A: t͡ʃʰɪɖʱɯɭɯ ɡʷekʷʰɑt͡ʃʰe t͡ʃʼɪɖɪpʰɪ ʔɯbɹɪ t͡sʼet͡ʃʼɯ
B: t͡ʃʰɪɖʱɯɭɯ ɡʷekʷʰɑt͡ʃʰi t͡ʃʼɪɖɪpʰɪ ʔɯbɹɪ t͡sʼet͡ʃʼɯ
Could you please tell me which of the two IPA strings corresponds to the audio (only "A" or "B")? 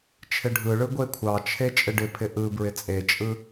A